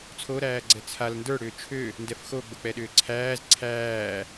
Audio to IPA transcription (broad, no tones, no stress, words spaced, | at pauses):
t͡sʰoɾæːɡ͡ǀɛ t͡sʰal ndə˞ɽʏː t͡ʃʰø | ndɛfxo ɡ͡bok͡pɛɗʏːǀʰæːz ǀʰæː